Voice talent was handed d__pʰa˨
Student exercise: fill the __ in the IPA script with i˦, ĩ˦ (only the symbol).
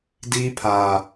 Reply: i˦